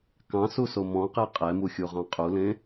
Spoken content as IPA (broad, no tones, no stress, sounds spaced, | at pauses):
k ɑ̃ s u s o m ɔ̃ q e qʼ ɛ m u xʲ u ʁ ɑ̃ qʼ u l ẽ